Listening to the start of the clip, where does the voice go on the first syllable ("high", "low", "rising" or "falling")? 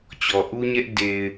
low